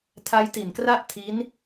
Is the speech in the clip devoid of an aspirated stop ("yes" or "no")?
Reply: no